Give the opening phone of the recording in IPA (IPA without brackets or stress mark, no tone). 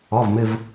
ɔ